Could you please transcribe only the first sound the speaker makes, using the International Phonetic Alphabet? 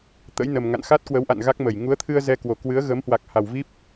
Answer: t̪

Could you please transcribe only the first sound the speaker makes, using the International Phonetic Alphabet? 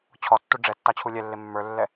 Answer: t͡ɕʰ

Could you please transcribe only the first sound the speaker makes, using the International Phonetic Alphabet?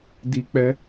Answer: d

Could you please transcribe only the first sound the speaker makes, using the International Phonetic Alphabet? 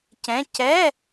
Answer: c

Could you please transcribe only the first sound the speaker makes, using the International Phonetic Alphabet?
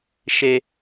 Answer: ʃ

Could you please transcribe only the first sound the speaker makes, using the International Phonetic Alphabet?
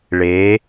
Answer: ɭ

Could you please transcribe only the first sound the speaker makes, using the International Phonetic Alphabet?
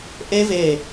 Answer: ʔ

